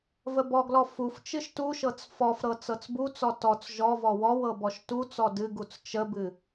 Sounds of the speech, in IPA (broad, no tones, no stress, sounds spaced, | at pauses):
v ə b ɔ ɡ l ɔ f u f t͡ʃ ɨ ʃ t u ʃ ɤ t͡s f ɔ f ɾ ɤ t͡s ɤ t͡s b u t͡s ɔ t ɔ t͡s ʒ ɔ v ɔ w ɔ w ɤ b ɔ ʃ t u t͡s ɔ d ɨ ɡ u t͡s t͡ʃ ə b ɨ